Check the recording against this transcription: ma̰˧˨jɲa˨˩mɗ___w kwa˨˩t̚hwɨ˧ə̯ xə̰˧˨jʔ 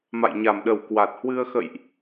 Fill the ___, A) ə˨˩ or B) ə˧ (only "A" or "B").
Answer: A